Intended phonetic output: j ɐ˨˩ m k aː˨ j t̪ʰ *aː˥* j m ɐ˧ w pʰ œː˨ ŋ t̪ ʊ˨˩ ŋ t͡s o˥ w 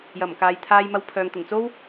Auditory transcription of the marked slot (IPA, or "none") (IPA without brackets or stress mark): aː˧